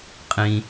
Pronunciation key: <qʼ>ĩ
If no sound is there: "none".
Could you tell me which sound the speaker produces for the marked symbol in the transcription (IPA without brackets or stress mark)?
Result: qʼ